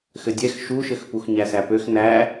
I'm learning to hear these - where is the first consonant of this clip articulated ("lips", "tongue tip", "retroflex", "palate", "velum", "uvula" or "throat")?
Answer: velum